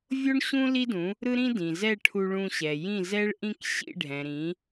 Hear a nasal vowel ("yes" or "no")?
yes